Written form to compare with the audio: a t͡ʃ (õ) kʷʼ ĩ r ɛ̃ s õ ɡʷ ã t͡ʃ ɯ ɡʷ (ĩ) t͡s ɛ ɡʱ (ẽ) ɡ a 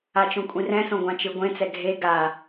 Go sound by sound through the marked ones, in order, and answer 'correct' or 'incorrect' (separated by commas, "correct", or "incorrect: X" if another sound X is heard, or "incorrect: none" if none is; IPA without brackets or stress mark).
correct, incorrect: ẽ, incorrect: e